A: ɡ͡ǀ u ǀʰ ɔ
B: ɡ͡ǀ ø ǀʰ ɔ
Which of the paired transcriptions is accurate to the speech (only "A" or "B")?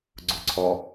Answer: A